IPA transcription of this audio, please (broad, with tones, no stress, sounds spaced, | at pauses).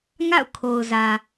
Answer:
ŋ a̰˦˨ ʊ̯ kʰ o˨ ʊ̯ z ä˨